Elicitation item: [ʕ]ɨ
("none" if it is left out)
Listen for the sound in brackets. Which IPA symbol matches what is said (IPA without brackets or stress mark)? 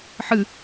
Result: ħ